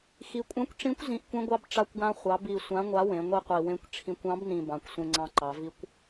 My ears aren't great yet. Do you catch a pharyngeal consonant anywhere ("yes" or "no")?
no